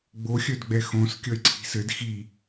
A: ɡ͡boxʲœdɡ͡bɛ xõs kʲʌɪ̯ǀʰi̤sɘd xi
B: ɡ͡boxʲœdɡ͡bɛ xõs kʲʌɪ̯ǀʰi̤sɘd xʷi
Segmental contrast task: A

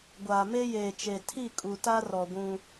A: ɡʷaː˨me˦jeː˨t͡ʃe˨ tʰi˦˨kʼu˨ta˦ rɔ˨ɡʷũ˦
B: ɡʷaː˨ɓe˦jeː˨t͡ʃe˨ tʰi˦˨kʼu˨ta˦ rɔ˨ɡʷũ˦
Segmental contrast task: A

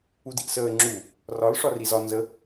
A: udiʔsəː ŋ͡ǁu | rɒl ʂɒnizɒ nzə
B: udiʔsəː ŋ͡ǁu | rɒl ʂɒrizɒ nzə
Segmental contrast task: B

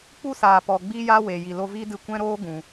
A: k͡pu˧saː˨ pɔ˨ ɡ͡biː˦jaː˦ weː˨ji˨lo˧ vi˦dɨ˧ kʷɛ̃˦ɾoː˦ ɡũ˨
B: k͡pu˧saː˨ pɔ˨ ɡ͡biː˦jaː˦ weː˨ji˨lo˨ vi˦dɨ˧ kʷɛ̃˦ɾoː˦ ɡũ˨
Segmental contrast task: A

